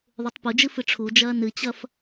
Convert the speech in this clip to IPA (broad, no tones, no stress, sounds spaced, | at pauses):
ðˤ ʉ tˤ p u d͡ʒ ɨ f ɨ ʈ͡ʂʰ u d͡ʒ ɐː n ɨ t͡ɕ ɐ f